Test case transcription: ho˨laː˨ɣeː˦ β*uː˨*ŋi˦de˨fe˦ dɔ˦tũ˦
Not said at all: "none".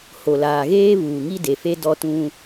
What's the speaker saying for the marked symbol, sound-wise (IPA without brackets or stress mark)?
uː˨